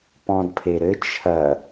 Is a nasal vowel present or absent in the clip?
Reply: present